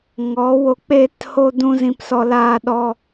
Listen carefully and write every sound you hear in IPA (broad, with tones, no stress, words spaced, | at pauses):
ŋɔ˨˦ wo˧ k͡peː˦tho˦dũ˦ zĩ˧psɔ˧ laː˦ɗɔ˦